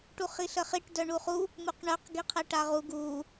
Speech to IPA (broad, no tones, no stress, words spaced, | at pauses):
ʈuχiɬəχiʈ dœɳuχu | muqɳœq ɡiqʰɛʈaʁu ɡu